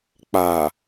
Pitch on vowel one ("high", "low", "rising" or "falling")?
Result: low